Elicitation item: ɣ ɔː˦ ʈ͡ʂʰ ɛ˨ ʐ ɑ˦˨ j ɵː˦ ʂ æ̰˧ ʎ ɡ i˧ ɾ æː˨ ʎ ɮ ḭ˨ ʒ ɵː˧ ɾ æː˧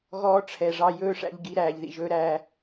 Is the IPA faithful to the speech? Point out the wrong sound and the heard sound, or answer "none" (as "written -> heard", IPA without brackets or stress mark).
ɮ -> ð